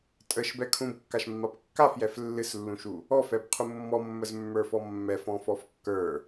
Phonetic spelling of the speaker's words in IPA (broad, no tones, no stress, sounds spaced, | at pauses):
tʼ ə ʃ b ɛ kʰ ũ b kː a ʃ mː a p kː a f j ɛ f lː ɨ s lː ũ ʃ u | ɔ f ɛ b qʰ u mː ɔ mː ə z mː ə˞ f ɔ mː ɛ f ɔ̃ f ɔ f kː ə˞